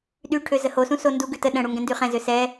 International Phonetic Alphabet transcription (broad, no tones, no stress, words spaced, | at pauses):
ɗyʈʰø zəhosũ sondu ɡʉtə ɗə̃ɽu ŋɡɛ̃ndyχɛ̃zø sɛ